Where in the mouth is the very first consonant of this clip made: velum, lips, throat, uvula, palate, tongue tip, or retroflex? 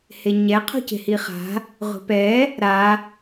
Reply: throat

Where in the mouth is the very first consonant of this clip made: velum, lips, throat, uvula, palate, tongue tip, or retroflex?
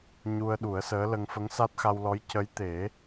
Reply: palate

